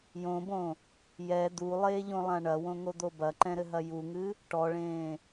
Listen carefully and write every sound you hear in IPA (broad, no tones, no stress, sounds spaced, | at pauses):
j õ b õ | j ɛ d̪ u lˠ eː ʎ õ lˠ ã ɳ ɐ w õ ŋ o d̪ o b ɐ ǃ ɛ̃ ɾ ɘ ɦ ɐ j u ŋ ɨ | ʈ ɔ ɭ ẽː